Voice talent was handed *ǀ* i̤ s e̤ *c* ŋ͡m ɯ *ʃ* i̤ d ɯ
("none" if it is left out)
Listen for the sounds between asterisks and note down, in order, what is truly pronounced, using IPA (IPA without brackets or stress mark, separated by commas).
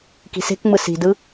k, k, s